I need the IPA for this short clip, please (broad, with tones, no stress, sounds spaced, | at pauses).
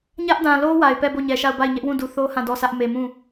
ɲ ä˦ ʔ d ã˨ l o˦ w a˨ ɪ̯ p ɛ˦˨ b o˦˨ ɲ ɛ˨ ʃ a˦˨ ʊ̯ b a˦˨ ɪ̯ ɲ ɛ˦ ʔ w ũ˦˨ d u˨ θ o˦ h ã˦˨ d ɔ˦˨ sʰ ä˦ ʔ m e˨ m ũ˦˨